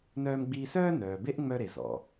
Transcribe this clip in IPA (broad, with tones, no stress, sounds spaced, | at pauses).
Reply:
n œː˧ m ɡ͡b iː˧ s œː˥ n œː˩ b e˥ ʔ ŋ͡m œ˧ ɾ e˩ z ɔ̰˩